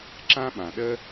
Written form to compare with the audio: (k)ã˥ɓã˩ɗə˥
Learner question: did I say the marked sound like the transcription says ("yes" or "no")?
no